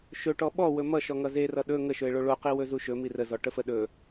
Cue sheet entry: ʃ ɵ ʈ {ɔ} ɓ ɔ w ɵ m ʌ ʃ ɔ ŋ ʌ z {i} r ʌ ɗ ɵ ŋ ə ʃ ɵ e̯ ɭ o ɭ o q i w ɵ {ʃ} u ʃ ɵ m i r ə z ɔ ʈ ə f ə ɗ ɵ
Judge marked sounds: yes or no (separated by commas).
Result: yes, no, no